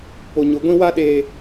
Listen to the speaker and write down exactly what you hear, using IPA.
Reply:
p o˨ ɲ ʊ˨ ɡʷ ĩ˦ w a˦ ɗ eː˨

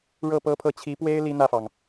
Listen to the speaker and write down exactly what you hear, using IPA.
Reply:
ɻ ɤ˥˩ p ɤ˥ pʰ ɤ˥ t͡ɕʰ i˧˥ p w e˥ ɪ̯ l i˥ n̪ ä˥˩ f ɑ˩ ŋ

